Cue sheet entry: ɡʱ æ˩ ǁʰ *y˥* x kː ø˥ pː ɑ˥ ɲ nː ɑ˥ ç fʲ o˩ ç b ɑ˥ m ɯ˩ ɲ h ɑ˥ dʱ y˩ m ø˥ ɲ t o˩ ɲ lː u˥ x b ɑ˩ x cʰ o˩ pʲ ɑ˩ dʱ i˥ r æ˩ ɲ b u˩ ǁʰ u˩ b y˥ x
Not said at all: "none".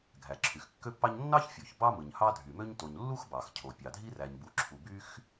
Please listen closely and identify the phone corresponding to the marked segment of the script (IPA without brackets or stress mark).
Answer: y˩